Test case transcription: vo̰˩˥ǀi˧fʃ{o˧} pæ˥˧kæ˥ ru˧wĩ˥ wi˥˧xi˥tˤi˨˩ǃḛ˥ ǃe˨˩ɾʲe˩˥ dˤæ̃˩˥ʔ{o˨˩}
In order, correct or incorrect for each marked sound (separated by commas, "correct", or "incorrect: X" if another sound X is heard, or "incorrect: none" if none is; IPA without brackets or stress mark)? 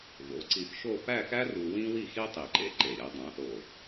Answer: incorrect: o˥˧, correct